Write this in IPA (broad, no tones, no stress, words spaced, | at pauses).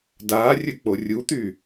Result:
daːrʲɵ k͡porʲut̪y